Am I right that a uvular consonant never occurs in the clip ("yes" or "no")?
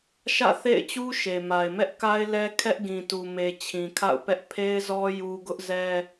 yes